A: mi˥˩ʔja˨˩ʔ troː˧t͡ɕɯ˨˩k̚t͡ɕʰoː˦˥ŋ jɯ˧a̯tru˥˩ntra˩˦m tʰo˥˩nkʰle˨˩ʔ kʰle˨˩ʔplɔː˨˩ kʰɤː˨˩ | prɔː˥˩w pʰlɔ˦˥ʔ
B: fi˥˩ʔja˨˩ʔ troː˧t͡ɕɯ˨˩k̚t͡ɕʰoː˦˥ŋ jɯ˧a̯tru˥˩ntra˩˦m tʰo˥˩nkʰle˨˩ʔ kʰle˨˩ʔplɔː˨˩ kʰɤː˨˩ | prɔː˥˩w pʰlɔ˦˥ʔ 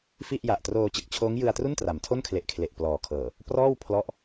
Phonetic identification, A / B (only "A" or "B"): B